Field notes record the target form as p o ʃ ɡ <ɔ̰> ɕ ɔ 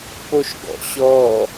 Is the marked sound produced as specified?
yes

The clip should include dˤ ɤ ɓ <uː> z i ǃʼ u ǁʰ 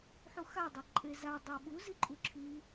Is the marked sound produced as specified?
no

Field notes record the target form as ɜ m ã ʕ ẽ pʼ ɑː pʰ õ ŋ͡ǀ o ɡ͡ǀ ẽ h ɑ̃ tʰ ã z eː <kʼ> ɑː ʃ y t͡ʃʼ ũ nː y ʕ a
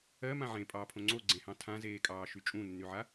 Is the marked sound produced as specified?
yes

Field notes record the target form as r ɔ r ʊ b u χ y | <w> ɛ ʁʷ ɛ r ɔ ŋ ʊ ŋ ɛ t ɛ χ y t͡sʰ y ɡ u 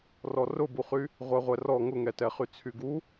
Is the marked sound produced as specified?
no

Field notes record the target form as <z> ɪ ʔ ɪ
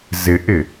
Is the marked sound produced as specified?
yes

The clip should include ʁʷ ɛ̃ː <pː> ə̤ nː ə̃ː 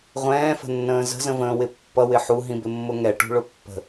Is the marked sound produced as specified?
no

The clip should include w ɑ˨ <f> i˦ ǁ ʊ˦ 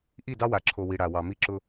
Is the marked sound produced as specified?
no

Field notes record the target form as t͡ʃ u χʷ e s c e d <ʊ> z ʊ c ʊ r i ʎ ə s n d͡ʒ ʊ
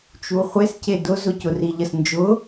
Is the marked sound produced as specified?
yes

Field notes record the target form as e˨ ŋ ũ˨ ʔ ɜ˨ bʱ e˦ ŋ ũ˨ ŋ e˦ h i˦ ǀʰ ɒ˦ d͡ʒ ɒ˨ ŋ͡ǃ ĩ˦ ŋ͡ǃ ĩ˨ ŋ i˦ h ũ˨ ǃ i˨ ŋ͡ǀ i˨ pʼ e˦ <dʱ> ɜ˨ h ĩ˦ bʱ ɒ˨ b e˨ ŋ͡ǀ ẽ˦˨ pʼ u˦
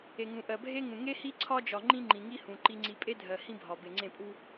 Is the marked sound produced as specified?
yes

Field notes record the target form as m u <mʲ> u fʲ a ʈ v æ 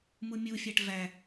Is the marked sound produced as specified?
yes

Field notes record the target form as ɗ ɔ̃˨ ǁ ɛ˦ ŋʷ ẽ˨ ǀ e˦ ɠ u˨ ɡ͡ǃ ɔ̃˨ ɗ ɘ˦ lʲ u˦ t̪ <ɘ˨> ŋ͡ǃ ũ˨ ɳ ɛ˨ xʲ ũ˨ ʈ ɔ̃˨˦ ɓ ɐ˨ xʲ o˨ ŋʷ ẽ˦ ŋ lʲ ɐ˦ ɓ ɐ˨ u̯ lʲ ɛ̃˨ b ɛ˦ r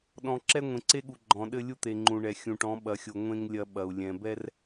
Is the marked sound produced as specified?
no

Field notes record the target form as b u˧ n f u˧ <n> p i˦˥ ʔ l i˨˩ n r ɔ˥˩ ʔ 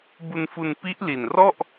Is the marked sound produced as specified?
yes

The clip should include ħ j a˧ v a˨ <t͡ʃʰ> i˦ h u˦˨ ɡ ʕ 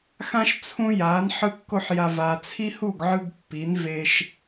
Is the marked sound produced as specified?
no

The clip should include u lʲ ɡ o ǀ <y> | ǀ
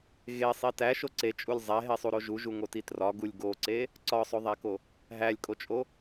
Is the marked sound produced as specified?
no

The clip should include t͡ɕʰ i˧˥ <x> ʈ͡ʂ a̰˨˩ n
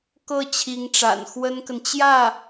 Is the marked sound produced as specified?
no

